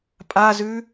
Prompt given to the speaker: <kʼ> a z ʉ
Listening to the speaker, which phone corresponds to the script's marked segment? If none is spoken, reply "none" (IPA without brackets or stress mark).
pʼ